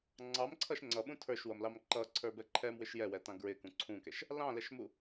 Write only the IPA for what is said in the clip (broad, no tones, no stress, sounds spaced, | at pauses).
ŋ͡ǀ ɑ m ǀʰ ʌ ʃ ŋ͡ǀ ʌ ɓ ũ tʰ ə˞ ʃ w ʌ m l ɑ m ǃ ʌ ǀʰ ə˞ b ɛ ǃʰ ɛ m w ɪ ʃ j ɛ w ɛ t ɑ̃ ɡ ɹ ɪ k ũ ǀʰ ũ k ɛ ʃ | l ɑ̃ l ɛ ʃ m u